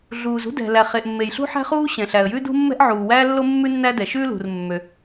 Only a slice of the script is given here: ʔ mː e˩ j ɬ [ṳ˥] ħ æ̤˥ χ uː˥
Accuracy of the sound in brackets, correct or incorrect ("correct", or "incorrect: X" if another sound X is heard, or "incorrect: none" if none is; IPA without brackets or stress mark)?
correct